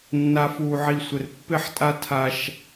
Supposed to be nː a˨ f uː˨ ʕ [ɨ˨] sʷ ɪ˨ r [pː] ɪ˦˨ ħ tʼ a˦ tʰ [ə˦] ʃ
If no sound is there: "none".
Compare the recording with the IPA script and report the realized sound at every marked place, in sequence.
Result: i˨, pː, a˦

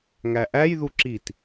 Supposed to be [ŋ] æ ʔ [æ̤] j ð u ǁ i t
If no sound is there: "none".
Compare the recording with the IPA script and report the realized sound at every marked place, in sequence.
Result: ŋ, æ

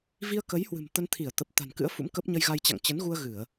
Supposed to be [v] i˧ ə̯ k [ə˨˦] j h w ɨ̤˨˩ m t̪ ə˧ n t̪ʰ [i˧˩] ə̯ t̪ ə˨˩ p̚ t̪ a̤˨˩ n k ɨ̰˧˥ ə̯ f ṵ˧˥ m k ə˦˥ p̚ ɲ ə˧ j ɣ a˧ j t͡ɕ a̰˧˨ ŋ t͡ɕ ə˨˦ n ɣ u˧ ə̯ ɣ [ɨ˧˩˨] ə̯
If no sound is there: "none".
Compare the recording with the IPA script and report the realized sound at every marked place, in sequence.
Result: v, ə˨˦, i˧˩, ɨ˧˩˨

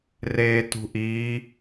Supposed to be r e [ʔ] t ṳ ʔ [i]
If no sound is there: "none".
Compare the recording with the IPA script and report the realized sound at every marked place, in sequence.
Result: none, i

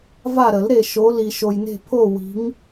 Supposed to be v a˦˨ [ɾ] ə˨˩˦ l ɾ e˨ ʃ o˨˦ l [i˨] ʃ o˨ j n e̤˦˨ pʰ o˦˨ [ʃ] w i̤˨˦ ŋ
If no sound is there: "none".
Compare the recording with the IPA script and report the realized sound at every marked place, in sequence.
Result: ɾ, i˨, none

